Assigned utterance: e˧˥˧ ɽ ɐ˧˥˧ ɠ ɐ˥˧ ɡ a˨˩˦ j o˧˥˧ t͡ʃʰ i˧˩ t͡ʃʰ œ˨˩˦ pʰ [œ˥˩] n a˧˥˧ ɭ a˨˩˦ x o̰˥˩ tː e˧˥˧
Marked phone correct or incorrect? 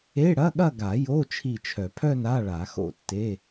incorrect